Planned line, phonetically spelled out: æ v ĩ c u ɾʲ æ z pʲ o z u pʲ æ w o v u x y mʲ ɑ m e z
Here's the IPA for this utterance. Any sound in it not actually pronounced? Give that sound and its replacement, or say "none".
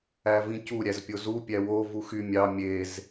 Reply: m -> mʲ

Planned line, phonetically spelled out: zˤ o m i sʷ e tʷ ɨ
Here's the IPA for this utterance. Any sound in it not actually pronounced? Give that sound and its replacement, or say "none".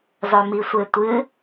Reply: none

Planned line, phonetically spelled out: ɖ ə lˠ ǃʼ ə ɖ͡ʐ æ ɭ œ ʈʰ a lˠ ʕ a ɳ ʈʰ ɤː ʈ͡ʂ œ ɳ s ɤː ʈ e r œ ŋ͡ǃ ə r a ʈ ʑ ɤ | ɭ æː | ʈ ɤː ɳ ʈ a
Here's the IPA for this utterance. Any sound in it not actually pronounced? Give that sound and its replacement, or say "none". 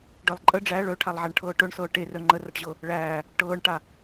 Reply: ʈ͡ʂ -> ʈ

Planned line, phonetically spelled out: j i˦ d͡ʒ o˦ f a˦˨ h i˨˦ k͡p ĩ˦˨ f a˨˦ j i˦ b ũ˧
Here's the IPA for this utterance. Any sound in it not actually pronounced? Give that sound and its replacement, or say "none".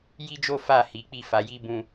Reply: ĩ˦˨ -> i˦˨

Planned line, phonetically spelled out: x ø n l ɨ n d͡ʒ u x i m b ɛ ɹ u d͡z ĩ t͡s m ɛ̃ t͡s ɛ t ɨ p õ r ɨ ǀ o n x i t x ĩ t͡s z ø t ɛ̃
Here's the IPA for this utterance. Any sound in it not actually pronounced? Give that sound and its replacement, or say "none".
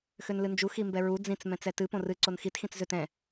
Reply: none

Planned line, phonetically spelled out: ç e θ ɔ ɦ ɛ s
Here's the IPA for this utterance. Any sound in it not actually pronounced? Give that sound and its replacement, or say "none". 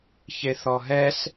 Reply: none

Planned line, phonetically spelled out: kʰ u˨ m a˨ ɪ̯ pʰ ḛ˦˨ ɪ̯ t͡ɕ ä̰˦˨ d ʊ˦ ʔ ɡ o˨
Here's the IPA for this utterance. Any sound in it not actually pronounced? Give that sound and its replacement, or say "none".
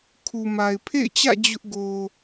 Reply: d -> d͡ʑ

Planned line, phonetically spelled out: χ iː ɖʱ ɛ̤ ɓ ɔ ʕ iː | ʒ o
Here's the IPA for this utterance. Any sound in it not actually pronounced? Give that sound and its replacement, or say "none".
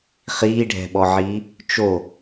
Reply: ʒ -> t͡ʃ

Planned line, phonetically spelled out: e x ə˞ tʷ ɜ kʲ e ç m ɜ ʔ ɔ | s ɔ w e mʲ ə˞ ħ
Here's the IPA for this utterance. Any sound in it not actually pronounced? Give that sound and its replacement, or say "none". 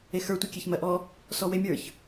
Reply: ħ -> ç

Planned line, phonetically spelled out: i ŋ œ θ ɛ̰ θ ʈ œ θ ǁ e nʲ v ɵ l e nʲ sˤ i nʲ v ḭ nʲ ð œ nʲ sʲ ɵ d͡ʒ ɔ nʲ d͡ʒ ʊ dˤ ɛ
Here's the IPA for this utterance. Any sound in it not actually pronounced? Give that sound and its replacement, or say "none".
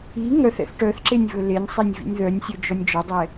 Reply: ʊ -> ɔ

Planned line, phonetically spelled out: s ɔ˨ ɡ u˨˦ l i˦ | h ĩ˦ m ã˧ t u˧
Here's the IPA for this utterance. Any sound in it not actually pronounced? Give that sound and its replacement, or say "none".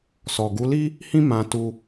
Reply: none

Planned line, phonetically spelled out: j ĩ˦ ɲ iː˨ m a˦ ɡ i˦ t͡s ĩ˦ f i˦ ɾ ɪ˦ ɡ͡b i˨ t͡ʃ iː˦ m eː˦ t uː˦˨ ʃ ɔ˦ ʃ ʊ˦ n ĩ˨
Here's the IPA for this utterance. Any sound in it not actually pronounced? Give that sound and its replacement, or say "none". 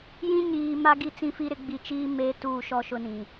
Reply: none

